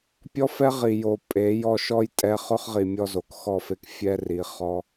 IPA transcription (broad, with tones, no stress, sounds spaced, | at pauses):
pʲ ɔ˦ f ɛ˦ ʁ i˨ j o˨ pʼ e˨˦ j ɔ˧ ʃ ɔ˦ j tʼ ɛ˧ χ ʊ˦ χ ʁ i˨ mʲ ɔ˧ z o˨ k x ɔ˦˨ f e˧ k fʲ ɛ˦ r i˨˦ χ ɔ˦